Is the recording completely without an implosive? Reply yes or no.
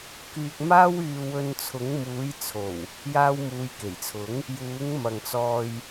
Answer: yes